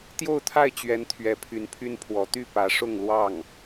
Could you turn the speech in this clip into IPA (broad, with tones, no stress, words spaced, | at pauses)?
t̪jo˥˧ʊ̯t̪ʰa˥˩ɪ̯t͡ɕɥɛ˧˥n t̪ʰɥɛ˧˥pʰy˧˥npʰy˥npʰwɔ˧˥ t̪y˥˩pä˧˥ʂʊ˥˧ŋ lwɑ˥˩ŋ